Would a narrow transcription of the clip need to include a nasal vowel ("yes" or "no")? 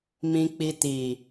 yes